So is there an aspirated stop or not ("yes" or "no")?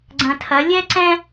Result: yes